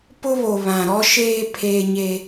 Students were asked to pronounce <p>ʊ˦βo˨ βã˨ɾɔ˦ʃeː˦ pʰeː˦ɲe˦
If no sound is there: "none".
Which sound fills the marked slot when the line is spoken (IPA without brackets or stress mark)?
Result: p